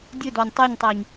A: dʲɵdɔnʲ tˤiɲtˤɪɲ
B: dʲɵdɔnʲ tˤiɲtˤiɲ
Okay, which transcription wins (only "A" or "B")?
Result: B